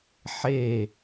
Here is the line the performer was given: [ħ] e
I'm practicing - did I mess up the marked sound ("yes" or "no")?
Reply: no